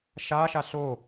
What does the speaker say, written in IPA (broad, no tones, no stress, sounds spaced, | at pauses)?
ʃ a ʃ a ɬ o